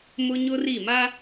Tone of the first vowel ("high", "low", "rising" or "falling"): high